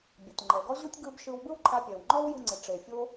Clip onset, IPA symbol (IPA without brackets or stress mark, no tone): bʲ